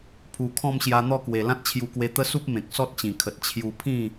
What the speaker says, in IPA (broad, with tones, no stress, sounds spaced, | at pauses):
pʰ u˨˩ kʰ ɔ̃˥˧ m ɕ j a˧ n̪ ɔ˥˧ k w e˨˩ l ã˦ t̚ t͡ɕʰ j u˧ k w e˧ t̪ ə˦ s u˦ p̚ m ẽ˨ k̚ s ɔ˦ t̚ t͡ɕ ĩ˨˩ kʰ ə˨ t̚ t͡ɕʰ j u˧ pʰ ĩ˥˧